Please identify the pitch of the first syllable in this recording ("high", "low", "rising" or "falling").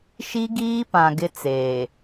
high